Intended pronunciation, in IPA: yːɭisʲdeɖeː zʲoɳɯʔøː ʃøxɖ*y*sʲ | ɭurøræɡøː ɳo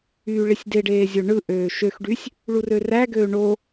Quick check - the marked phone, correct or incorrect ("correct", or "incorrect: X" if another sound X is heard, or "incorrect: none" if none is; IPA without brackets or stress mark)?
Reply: correct